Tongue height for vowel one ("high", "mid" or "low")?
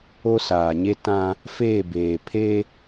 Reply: mid